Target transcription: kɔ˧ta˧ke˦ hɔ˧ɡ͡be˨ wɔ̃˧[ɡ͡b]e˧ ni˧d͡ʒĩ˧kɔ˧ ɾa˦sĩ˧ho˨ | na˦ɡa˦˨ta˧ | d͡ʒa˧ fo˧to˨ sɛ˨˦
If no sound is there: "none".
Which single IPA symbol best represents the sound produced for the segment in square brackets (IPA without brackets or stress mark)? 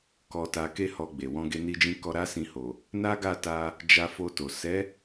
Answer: ɡ